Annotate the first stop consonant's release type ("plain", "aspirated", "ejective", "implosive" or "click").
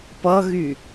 plain